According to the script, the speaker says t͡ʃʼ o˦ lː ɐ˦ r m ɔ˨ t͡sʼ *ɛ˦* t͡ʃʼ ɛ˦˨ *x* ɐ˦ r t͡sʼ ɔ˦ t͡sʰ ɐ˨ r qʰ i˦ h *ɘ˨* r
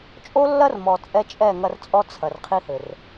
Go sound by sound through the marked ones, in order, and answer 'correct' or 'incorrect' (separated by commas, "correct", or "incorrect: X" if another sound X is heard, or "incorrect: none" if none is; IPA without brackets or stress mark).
correct, incorrect: ŋ, correct